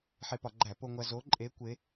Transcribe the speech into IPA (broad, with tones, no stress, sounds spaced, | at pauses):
ħ e˧ p ɒ˧˩˧ ɡ͡ǃ æ˧˩˧ p o˧ ŋʷ æ˧ z o˧˥ ǃʼ e˧˥ kʷ e˧˥